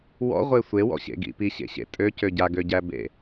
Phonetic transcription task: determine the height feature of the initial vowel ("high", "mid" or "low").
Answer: mid